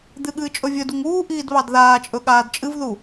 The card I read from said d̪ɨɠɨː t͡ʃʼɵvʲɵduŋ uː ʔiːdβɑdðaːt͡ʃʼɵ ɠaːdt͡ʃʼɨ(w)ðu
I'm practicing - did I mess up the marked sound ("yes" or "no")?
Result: yes